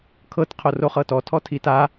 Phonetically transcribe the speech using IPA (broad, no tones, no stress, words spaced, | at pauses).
kʰɤt qʰoroχɤtɔ tʰɔtʰita